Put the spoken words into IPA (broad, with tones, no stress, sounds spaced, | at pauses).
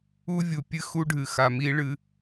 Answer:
u˦ vʲ u˨ pʲ ɨ˦ x u˦ ɖʱ ɨ˨ x a˨ m i˦ ɭ ɨ˦